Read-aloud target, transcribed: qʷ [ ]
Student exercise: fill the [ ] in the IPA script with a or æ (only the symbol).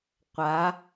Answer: a